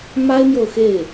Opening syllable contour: high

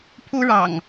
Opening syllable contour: high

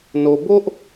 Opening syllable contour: low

